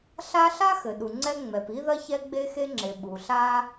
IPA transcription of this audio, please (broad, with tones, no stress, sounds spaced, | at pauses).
ɬ a˥ ɬ a˥ x ɘ˩ ɗ u˩ ŋ͡ǀ ɛ˥ ŋ͡m ɛ˩ p i˥ ð ɐ˥ ç ɛ˥ ɡ͡b e˥ x e˥ ŋ͡ǁ e˩ ɓ u˩ ɬ a˥